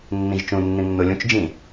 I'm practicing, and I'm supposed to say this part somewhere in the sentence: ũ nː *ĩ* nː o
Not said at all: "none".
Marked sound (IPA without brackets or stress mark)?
ĩ